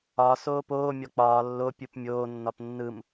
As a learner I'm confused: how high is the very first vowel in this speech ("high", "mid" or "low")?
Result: low